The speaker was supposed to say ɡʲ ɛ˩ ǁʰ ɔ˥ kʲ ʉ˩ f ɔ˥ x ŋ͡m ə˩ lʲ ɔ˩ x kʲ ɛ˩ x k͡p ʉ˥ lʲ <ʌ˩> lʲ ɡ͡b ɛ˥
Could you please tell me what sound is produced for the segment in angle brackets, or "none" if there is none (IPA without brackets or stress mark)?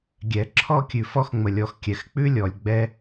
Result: ɔ˩